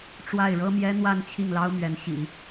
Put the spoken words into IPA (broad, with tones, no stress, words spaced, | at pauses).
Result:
ʈ͡ʂwa˥˩ɪ̯ɻɤ˥ mjɛ˥n̪wa˥˧n t͡ɕʰi˥˩ŋlɑ˥ʊ̯mɥɛ˧˥n ɕḭ˨˩˦